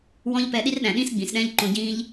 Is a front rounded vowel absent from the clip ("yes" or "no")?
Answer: yes